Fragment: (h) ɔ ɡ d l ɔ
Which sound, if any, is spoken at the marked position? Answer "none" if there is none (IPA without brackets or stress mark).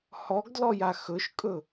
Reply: h